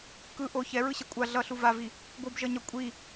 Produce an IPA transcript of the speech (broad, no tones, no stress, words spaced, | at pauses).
kɯ ʔo çɛɹɯɕɛ kʷʼa ɮʌɬu vavi | ɡʷɯbʒʌɲʌ kʷʼi